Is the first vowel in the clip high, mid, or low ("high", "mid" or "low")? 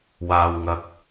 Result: low